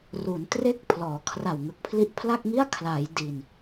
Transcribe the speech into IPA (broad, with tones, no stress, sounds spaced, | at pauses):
r u˩˦ n t r e˥˩ k̚ pʰ l ɔː˩˦ kʰ r a˨˩ w ŋ ɯ˨˩ k̚ pʰ l i˦˥ ʔ pʰ l a˥˩ k̚ ŋ i˥˩ a̯ kʰ l a˩˦ j d i˨˩ n